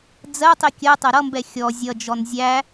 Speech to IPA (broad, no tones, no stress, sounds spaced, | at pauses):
d͡z ɜ tˤ i kʲ ɜ tˤ ɛ ɾ ʌ m b ɛ xʲ ɔ zʲ ʌ d͡ʒ ɔ n zʲ æ